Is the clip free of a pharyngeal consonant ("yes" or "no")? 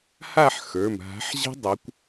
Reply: no